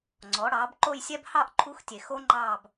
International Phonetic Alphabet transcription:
ŋ͡ǀ ɔ˩˥ ɽ ɑː˩˥ b ǃ o˥˧ j sʲ ɛ˥ b h ɑ˥˧ ʔ ǃʰ u˧˥ x tʲ e˨ x o˥ ŋ͡ǃ ɑː˥˧ b

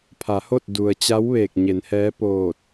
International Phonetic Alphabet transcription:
pʰ a˩˧ h o˥˨ t̚ d u˩ ə̯ t͡ɕ a˧˥ w ʋ eː˧˩ k̚ ɲ e˩˧ n h ɛː˧˥ p oː˧˩ t̚

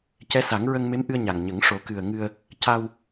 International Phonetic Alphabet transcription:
c ɛ˧˥ s a˨˩˦ ŋ ɹ ə˧ ŋ m e˧˥ m ʔ ɨ˧ ə̯ ɲ a˨˩ ŋ ɲ ə˨˩˦ ŋ ʂ o˨˩˦ k ɨ˨˩ ə̯ ŋ ɨ˧ ə̯ | c a˧ w

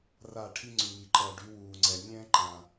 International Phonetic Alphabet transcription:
r a˦˨ ʈʰ i˦ ŋ͡ǀ ʉ˨ m i˨ ǃ ʌː˨ ɖ y˨˦ w uː˨ ŋ͡ǀ ɛ˨ nʲ ɛ̃ː˦ ǃ ã˨

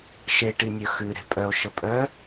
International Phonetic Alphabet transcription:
ʃ e ʈ i nʲ œ x ʉ ɾ e̤ pʼ œ o̯ ʃ ə pʼ œ

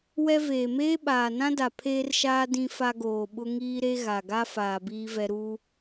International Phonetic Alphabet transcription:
w ɛ˦ v eː˨ m eː˦ ɓ aː˨ n ã˦ d a˨ pʰ eː˦ r ʃ aː˦ d ĩ˦ f a˦ ɡ oː˨ ɓ ʊ˦ ŋ iː˦ ɾ e˦ ɣ a˨ ɡ a˦ f aː˨ b iː˦ v ɛ˦ ɾ uː˦

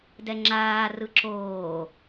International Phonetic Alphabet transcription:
d ɛ ŋ͡ǁ aː r ɯ ǁ oː

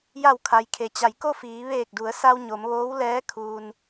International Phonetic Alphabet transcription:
j a˧˩ w kʰ a˩ j kʰ e˩ t͡ɕ a˩˧ j k o˥˨ f iː˩˧ ʋ eː˧˩ k̚ d u˩˧ ə̯ s a˧ w ɲ o˩˧ m ʋ oː˧˥ w l ɛː˧˥ kʰ uː˩ n

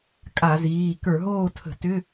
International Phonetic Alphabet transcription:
kʼ a˧˩˧ z iː˩˧˩ k ə˞˧˩˧ ɦ oː˥˨ tʰ ə̤˧˩˧ t ʏ˧˥˧

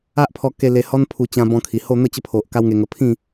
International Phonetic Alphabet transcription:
a˦ ʔ pʰ ɔ˧ k e˧ l e˧ h ɔ˦ n pʰ u˧ t͡ɕ ã˧ b ɔ̃˧ kʰ i˨˩ h o˥˧ n̪ ə˥˧ t͡ɕ ə˦ pʰ o˨ ʔ k a˦ w ŋ e˧ ŋ ə˧ pʰ ĩ˥˧

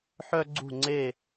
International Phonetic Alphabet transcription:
ħ œ˥ ɡ͡ǀ ṳ˥˧ ŋ͡ǀ e˥˧

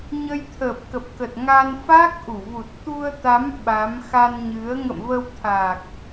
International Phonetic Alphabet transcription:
ɲ ə˧ j t̪ʰ ə˨˩ p̚ k ə˨˩ p̚ k ə˨˩ t̚ ŋ a˧ n f a˦˥ k̚ ʔ u˧˩ v u˨˩ t̚ t̪ u˧ ə̯ t̪ a˨˦ m ɓ a˨˦ m x a˧ n ɲ ɨ˨˦ ə̯ ŋ ə̰˧˨ m v ə˧ w t̪ʰ a˨˩ k̚

